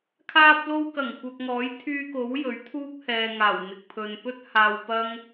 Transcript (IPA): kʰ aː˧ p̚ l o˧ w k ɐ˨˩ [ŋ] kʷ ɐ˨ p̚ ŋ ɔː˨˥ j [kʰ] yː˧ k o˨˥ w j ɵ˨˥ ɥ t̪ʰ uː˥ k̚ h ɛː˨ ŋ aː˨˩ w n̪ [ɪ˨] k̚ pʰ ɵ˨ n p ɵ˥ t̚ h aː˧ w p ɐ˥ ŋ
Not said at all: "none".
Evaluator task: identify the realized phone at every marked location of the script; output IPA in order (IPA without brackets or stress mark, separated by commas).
ŋ, t̪ʰ, ɪ˨